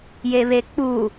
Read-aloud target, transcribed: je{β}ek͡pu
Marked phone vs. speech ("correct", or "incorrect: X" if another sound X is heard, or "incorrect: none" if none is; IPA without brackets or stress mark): correct